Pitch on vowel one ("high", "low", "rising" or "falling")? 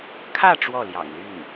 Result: falling